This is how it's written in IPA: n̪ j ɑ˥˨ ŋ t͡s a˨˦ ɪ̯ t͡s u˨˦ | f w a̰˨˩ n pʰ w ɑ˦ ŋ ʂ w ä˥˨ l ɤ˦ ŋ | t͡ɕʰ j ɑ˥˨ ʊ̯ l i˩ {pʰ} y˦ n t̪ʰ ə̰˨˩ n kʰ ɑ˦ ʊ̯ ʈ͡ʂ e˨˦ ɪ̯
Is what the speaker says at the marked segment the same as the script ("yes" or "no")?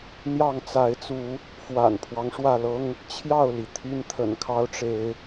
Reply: no